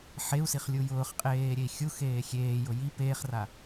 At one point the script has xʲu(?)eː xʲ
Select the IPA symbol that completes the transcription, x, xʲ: x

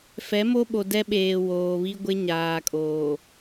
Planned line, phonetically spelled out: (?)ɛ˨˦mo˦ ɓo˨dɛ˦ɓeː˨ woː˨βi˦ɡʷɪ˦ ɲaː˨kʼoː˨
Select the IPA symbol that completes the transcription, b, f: f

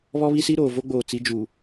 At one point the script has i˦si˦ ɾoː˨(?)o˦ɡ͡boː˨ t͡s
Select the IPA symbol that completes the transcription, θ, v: v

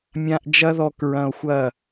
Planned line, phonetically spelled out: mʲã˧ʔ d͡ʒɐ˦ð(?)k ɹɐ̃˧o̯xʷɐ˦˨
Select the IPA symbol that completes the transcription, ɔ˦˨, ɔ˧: ɔ˧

